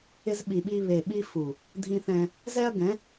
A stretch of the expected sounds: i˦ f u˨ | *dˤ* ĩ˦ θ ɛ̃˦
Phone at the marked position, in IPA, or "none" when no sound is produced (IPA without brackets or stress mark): dʱ